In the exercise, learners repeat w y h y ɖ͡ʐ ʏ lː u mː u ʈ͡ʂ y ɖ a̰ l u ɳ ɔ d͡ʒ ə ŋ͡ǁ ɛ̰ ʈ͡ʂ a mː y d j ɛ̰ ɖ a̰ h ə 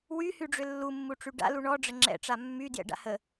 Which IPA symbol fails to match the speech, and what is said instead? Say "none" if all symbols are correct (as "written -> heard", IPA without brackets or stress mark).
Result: d͡ʒ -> ɖ͡ʐ